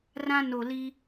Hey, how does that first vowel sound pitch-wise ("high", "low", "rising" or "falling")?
high